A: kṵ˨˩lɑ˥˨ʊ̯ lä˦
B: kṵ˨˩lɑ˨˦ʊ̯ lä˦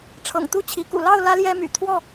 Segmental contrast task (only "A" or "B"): A